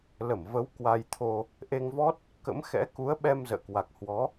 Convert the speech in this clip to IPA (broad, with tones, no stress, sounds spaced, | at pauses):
l ə˧˩ m v ə˨˦ w k w a˧ j t̪ʰ o˧ | ʔ e˧ ŋ v ɔ˦˥ t̚ | k ə̰˧˥ m x ɛ̰˧˥ k u˨˦ ə̯ ɓ ɛ˧ m z ə̰ː˧˨ k w a˨˩ k̚ h w ɔ˨˦